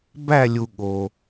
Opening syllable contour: falling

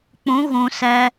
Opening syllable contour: rising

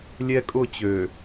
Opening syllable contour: high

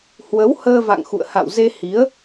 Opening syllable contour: rising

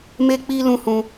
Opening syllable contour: high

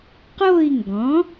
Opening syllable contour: falling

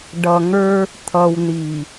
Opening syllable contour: low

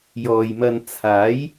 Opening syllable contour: low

